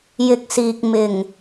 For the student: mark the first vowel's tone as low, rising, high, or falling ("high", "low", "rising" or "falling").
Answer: low